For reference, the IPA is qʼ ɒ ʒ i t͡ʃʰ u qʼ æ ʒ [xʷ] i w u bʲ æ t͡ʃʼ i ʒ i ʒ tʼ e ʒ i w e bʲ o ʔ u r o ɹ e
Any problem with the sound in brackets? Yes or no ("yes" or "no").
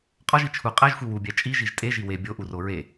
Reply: no